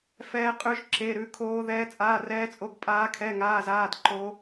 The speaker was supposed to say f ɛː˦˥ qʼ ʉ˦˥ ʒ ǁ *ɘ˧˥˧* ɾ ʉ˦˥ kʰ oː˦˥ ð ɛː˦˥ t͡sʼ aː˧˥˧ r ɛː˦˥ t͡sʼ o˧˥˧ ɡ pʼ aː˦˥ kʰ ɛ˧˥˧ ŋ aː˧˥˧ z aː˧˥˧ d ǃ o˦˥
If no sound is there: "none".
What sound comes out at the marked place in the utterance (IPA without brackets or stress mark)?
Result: e˧˥˧